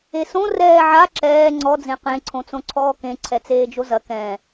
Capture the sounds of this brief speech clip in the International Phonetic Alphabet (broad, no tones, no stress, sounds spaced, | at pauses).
e s õ r ɛː ʕ a ǁ ɛː ŋ͡ǀ ɔ d͡z ẽ q ẽ ǀʰ õ t͡s õ ǀʰ ɔː k ẽ ǀʰ ɛ t͡s eː d͡ʒ o z ɐ k ɛ̃